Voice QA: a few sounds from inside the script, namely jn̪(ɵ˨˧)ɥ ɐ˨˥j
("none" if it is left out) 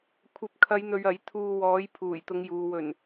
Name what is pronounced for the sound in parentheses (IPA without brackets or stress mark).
ɵ˨